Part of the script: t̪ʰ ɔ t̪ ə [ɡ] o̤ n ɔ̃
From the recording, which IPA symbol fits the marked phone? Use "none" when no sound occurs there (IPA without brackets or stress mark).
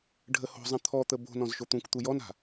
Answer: b